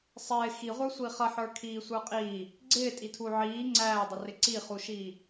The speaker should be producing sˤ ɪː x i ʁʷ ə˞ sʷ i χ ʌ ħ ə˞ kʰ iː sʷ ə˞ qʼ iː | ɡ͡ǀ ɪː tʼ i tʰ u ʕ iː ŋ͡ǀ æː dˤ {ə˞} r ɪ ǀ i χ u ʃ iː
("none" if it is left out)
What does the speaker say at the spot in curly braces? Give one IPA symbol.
ʌ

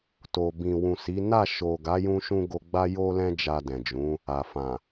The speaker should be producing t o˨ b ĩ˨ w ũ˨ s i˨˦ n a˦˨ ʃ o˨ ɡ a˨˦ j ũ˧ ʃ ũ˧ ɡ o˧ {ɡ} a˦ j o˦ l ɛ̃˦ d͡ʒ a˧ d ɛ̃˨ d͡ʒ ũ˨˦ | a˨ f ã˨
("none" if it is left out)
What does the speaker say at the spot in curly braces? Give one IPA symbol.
ɡ͡b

